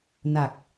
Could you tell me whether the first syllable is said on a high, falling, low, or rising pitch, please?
low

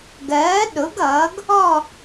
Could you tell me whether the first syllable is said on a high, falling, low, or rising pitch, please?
rising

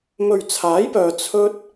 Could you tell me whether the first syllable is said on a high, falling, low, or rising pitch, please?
low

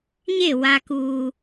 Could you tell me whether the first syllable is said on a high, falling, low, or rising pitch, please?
falling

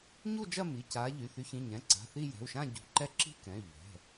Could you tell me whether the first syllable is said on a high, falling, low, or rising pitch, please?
falling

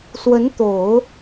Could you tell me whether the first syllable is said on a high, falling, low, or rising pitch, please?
rising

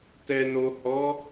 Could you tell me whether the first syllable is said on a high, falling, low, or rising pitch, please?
low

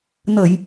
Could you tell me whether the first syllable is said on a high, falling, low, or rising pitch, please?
low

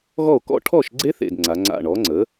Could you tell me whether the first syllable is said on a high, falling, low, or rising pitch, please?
falling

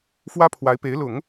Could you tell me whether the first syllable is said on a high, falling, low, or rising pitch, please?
high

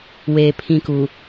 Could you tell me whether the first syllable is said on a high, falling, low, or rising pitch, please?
high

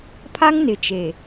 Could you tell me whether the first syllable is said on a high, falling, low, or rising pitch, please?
high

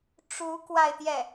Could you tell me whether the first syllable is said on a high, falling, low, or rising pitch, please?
rising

